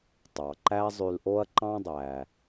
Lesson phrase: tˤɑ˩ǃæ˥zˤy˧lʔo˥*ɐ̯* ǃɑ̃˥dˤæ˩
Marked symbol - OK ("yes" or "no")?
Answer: yes